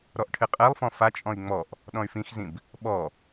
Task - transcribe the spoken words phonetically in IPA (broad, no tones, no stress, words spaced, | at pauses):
ɾɔʔʈʰɨqʼɛlˠfɔ̃ fat͡ʃʼɔ̃i̯ ŋ͡mɔʔ | ɗɔ̃y̯fĩxzĩb | ɓɔ